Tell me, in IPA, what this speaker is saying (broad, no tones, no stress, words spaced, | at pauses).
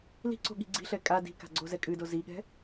li̤ǀo̤ ɠi̤ɡ͡ǀi̤ɬɛ kʼa di̤ka̤ ɡ͡ǀozɛkʼɨdo ziɠɛ̤